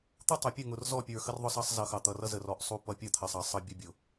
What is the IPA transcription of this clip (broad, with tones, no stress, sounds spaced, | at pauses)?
t̪ u˦ tˤ ʌ˨ pʲ ə˦˨ ŋ ʊ˨ r z ɔ˦˨ pʲ ə˞˨ x ə˦ r ðˤ ʊ˦ s ɑ˦ sˤ z ʌ˨ x ɑ˨ t̪ ʌ˨ r ʌ˦ z ə˨ r ɔ˨ ʔ sˤ u˦˨ p ʌ˦ pʲ ʌ˦˨ t̪ʰ ə˨ sˤ ɑ˨ sˤ ʌ˦ bʲ ʊ˦ bʲ ʊ˨